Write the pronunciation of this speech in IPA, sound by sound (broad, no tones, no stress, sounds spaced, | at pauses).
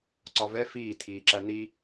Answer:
ǀ ɒ v ɛ f iː tʰ iː ǁ æ n̪ i